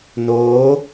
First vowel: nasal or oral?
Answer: oral